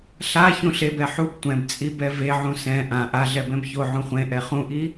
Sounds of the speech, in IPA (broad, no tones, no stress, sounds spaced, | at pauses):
ɬ a ç ũ ɬ e b ɛ ħ u b tʷ ɛ̃ b t͡sʼ i b ɛ v e ʕ ũ s ɛ̃ ʔ ã ʔ a ɮ ɛ b ɛ̃ b ç o ʕ ũ χʷ ẽ ʔ ɛ χ ũ ʔ i